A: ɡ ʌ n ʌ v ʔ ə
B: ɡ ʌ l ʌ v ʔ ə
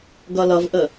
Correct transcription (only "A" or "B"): B